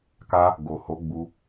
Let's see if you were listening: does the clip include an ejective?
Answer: no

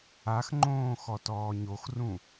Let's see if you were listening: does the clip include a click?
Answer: yes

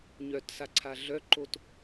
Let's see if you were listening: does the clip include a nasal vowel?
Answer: no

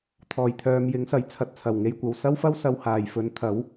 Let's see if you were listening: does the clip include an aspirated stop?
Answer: yes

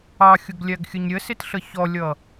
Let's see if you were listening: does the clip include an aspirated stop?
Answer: no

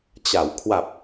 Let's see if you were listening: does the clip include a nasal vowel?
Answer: no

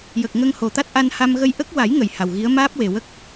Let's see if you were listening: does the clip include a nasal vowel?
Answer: no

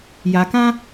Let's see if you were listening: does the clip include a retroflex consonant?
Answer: no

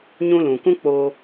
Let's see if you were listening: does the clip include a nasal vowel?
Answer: yes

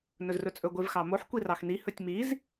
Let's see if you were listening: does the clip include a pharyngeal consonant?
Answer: yes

